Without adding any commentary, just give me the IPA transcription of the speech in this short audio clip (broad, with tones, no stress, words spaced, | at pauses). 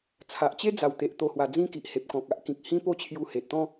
t͡sʰa˨ʔt͡ɕe˦d͡za˨˩wt̪e˨ʔ t̪o˧hwa˧d͡zĩ˦ki˨ʔ he˨p̚kɔ̃˨k̚a˦ʔkĩ˨k̚ hĩ˦po˥˧t͡ɕʰju˧ he˨t̚t̪ɔ̃˦